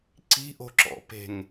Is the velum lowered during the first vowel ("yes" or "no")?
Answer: no